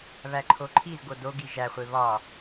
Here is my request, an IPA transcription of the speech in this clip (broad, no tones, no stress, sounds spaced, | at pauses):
β æ ǃʰ o ǃʰ i z ɡ o d o ɡ i ʒ æ χʷ e β ɒ